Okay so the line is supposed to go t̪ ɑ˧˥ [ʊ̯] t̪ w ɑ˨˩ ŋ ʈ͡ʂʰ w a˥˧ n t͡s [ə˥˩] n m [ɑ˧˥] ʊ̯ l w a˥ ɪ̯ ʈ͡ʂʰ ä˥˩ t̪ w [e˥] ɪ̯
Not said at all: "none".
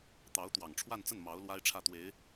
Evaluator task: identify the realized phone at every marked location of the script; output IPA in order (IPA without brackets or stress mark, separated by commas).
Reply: ʊ̯, ə˥˩, ɑ˧˥, e˧˥